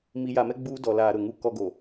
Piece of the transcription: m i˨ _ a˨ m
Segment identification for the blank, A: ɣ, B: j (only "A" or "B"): B